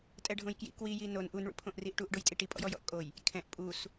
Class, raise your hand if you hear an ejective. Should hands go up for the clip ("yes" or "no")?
yes